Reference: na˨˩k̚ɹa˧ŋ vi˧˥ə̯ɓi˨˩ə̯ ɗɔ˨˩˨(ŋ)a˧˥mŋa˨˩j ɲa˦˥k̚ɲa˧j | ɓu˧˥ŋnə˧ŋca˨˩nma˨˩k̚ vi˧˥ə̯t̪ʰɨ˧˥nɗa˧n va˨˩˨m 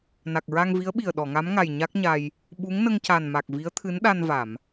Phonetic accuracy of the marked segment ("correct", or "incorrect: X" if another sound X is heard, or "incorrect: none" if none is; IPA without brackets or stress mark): correct